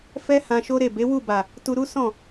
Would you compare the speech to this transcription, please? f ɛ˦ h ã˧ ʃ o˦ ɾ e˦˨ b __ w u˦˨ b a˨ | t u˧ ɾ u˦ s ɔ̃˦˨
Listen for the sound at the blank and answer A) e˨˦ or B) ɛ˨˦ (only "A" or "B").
A